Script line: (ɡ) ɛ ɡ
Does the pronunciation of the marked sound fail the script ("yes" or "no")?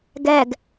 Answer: no